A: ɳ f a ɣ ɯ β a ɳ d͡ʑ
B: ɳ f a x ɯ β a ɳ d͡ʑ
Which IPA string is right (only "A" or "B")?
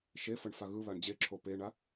A